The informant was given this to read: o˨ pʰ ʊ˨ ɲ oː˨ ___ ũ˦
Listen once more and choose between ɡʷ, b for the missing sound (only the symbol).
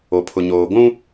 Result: ɡʷ